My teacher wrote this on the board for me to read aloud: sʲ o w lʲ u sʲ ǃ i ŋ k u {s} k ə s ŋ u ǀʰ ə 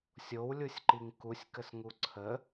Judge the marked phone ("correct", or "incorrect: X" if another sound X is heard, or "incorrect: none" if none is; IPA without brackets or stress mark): incorrect: sʲ